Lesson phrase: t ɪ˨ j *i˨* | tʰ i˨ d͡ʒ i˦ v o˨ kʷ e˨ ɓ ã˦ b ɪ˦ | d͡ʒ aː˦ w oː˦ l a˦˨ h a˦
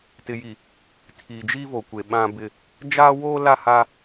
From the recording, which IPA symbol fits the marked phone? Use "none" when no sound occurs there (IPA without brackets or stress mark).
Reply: i˨